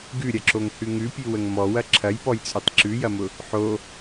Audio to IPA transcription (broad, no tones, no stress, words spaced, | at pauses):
ɡʉɾʲɐǁoŋhʉ ŋʉpʲʉwəŋ mɔwɐ ǁʰɐjpɔjt͡sʼʉtˤ ǁʉjɐmʊ | ħo